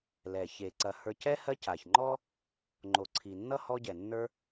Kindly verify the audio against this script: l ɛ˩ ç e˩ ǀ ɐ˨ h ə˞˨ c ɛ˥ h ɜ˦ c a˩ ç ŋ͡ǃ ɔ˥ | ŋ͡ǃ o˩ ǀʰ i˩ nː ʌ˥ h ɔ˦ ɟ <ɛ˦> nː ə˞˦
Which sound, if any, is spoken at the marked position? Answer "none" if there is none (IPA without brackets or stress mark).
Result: ɛ˩